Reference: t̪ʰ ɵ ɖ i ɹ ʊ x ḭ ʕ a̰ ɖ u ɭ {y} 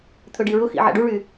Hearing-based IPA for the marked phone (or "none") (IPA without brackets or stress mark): y